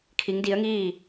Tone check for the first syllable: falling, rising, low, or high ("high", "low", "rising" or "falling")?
rising